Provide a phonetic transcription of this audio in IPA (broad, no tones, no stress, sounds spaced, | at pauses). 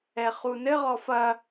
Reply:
ɛ χ u n ɘ ʁ ɔ f ɐ